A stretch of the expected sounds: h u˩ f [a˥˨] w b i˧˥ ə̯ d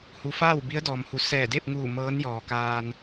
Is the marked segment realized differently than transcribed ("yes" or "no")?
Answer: yes